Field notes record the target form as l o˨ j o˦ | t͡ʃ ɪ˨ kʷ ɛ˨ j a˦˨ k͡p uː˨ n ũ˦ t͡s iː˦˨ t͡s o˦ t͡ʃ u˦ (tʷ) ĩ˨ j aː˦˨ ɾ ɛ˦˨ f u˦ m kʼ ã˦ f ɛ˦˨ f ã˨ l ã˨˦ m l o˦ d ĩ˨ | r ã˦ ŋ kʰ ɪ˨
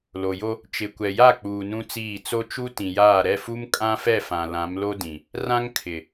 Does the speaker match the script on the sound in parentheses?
no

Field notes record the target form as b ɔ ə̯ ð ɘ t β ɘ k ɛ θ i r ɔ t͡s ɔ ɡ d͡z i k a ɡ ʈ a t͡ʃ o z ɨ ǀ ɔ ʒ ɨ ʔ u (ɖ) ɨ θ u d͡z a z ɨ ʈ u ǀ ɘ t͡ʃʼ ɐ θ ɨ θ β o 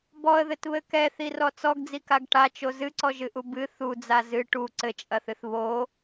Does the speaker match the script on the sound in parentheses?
no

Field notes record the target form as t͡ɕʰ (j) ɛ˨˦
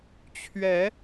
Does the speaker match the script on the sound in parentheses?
no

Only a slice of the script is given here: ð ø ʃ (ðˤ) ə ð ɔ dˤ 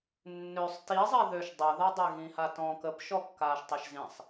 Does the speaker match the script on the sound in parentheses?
no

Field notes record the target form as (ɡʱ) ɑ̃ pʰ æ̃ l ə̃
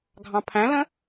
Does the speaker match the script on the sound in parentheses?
yes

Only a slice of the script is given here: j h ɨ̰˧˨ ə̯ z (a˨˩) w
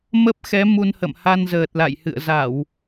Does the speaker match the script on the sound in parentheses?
no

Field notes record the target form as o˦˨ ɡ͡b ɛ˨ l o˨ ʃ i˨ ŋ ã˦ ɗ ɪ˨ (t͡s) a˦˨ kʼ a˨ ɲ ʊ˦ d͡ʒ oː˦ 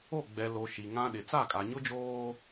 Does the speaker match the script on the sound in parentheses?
yes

